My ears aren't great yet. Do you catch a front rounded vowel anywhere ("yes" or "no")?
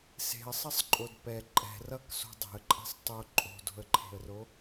no